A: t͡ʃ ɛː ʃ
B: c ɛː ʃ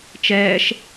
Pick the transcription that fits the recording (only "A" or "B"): A